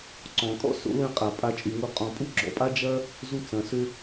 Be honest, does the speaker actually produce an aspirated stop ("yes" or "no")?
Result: no